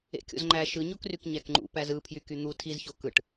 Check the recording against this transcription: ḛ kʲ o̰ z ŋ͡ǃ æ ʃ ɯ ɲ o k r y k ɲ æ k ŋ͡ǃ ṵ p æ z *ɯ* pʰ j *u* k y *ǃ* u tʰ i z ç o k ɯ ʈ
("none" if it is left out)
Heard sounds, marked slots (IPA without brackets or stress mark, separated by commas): ɯ, y, n̪